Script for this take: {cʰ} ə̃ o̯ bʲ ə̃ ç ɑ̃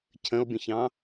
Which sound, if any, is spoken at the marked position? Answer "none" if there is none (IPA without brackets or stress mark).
cʰ